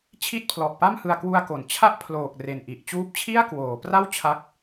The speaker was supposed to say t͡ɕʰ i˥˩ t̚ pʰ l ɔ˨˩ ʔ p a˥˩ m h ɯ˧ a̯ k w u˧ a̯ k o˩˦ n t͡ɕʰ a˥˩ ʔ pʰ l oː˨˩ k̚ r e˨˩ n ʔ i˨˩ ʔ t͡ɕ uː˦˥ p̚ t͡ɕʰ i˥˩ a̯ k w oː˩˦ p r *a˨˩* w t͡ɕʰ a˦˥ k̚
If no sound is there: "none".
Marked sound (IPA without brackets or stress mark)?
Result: a˥˩